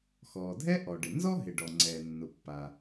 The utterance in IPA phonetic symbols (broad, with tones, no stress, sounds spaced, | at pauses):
x ɔː˩ dʱ ɛ˥ ʔ ɔ˩ ɖ ɪ˩ n z ɔ˥ ɦ ɪ˩ ɖ ɔ˩ ŋ͡ǀ ɛː˩ nː ʊ˩ pː a˩